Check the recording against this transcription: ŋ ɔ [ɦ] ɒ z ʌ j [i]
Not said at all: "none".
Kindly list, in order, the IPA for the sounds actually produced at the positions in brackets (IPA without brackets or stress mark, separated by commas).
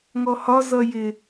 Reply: h, ɪ